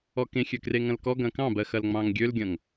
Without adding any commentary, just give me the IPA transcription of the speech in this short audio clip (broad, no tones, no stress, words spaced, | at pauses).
ɔkẽxʲø kreŋɐ̃lkɔ ɡɐ̃kɑ̃bɜxɐl ŋ͡mɑ̃ŋɡʲølɡʲɐ̃ŋ